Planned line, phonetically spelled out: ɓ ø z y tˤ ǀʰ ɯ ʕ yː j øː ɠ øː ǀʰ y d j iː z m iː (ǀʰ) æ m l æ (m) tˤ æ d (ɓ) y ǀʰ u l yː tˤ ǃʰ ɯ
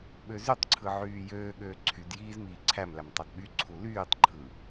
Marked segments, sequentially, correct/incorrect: correct, correct, correct

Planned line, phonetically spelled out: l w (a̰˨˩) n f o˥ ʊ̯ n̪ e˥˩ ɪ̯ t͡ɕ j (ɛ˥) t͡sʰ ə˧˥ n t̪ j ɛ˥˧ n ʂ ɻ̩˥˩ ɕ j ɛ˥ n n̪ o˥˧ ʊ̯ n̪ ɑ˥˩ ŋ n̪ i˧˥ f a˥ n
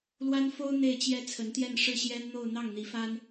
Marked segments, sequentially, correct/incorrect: incorrect, correct

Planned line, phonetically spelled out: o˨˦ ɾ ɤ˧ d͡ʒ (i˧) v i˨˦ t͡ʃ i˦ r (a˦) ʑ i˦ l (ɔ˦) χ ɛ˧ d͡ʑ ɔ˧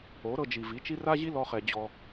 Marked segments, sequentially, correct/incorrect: incorrect, correct, correct

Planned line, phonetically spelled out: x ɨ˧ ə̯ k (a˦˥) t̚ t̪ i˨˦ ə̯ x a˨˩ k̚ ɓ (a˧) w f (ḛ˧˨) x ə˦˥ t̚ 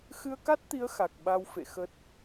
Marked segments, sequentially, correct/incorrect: correct, correct, correct

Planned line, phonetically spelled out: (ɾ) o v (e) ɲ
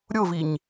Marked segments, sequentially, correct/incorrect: incorrect, incorrect

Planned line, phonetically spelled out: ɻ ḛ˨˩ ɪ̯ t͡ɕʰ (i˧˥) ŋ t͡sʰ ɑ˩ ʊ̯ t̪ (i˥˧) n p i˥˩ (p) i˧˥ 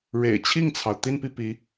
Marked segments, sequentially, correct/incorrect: incorrect, correct, correct

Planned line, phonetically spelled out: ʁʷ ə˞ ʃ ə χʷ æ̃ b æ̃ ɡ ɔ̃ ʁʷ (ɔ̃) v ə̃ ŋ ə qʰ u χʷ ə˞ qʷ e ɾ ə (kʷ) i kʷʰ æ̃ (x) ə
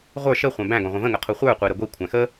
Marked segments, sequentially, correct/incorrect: incorrect, incorrect, correct

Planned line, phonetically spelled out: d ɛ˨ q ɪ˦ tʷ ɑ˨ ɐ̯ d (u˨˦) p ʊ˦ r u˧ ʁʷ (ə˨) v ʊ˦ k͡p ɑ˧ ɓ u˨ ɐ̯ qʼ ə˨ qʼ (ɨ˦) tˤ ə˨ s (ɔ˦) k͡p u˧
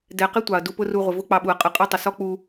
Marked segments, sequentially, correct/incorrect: incorrect, incorrect, incorrect, correct

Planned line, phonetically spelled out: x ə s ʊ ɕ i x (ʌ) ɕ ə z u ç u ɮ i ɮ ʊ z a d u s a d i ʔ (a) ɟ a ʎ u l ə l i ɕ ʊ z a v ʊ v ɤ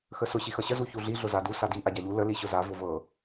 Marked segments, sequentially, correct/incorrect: correct, correct

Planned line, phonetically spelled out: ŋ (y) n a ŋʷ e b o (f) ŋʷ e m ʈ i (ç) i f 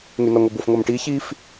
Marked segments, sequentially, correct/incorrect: correct, correct, correct

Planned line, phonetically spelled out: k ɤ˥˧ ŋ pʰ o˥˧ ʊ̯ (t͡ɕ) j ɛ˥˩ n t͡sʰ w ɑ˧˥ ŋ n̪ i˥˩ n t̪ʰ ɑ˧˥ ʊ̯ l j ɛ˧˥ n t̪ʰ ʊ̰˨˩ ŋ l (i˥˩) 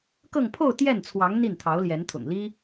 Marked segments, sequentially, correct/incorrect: incorrect, incorrect

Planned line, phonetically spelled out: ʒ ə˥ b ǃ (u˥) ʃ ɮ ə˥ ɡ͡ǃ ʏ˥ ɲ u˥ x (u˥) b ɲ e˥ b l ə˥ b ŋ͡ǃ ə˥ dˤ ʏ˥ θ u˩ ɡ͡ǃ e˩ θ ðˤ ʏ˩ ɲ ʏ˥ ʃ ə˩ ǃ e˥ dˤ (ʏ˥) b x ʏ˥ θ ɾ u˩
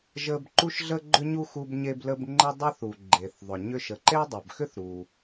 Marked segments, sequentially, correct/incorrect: correct, correct, incorrect

